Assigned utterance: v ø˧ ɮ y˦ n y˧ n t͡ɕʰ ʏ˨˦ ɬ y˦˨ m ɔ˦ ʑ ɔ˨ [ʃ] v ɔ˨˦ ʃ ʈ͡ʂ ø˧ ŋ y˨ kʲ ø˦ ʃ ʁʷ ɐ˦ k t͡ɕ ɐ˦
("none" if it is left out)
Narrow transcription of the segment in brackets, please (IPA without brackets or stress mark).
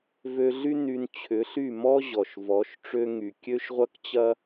ʃ